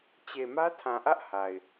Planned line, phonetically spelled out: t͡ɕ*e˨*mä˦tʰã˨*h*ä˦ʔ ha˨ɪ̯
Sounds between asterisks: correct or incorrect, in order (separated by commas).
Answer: correct, incorrect